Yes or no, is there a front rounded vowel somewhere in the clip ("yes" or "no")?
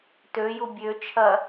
yes